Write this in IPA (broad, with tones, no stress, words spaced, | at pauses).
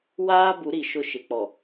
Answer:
waː˦bu˨˦ɾi˨ ʃʊ˦ ʃɪ˨k͡pɔ˨